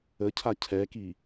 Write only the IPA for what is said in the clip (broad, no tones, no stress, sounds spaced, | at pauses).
ə cʰ a cʰ ɛ k i